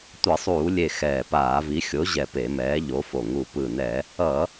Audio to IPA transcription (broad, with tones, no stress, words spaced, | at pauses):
tʷʌ˧˩˧sˤuː˧˩˧lʲe˧˩ xɛː˧˩paː˧˩˧vi˨˥ xʲo˨˥ʑɛ˧˩ pe˧˩˧mɛː˨˥ʎo˨˥fo˧˩ ŋu˧˩pɯ˧˩nɛ˧˩˧ | ʌ˧˩˧